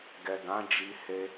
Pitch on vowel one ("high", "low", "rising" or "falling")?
low